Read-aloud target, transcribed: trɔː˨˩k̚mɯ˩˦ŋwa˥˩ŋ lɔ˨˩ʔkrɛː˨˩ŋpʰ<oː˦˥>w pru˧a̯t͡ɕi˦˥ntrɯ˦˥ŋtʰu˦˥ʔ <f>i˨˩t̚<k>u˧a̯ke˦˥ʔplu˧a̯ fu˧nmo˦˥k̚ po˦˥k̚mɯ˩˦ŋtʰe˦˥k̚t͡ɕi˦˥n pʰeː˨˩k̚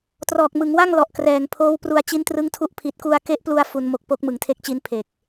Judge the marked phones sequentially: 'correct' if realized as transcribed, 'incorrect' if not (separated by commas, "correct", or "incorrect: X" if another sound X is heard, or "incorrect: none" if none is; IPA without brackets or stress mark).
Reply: correct, incorrect: pʰ, correct